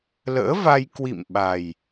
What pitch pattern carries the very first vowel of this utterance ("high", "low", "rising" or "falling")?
rising